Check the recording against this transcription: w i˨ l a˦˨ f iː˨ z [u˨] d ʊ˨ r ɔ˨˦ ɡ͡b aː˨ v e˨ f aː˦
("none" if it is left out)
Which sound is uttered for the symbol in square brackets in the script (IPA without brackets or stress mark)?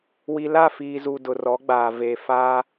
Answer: u˨